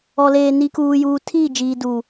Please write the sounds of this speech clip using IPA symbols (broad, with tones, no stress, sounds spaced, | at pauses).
ɔ˨ l eː˨ n i˨ k uː˨ j uː˨ tʰ iː˦˨ d͡ʒ iː˨ d uː˨